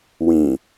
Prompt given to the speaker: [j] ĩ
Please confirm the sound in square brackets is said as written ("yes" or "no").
no